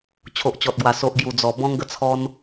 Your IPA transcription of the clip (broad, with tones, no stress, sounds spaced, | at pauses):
t͡ɕʰ o˨ ʔ t͡ɕ ɔ˨ t̚ ɡ w a˨˩ s o˨ ʔ ɡ j u˨˩ d͡z ɔ˨˩ b ɔ̃˧ ŋ ɡ ə˧ t͡sʰ ɔ˧ n